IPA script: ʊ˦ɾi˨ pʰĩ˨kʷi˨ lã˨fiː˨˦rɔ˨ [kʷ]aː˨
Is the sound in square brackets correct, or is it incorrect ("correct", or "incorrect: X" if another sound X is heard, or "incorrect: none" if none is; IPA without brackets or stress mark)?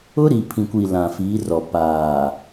incorrect: p